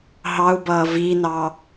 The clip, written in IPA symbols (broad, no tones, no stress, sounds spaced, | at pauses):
ɦ ɑ u̯ b ʌː v i n ɑ